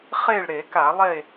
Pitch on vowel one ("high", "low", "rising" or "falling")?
falling